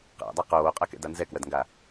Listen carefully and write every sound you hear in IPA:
qæ̰dˤæ qoːqʼakɛ̰da nzɛkwɜdŋɡa

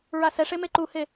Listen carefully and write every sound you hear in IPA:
ɹasɛʂe meǃuhe

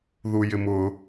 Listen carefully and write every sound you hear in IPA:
ðujɪmʊ

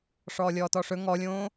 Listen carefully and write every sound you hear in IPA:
ʂɔːlʲɔːtɔʂɵ ŋɔlʲõː

